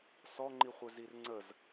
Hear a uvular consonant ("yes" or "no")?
yes